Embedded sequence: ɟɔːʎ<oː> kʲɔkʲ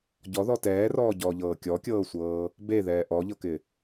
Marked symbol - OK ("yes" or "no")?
no